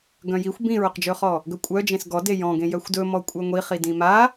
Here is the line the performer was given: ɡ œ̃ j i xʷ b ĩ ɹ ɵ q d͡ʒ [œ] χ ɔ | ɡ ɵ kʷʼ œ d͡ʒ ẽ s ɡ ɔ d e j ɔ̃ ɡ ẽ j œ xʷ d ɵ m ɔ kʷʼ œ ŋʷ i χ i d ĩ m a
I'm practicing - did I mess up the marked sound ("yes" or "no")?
yes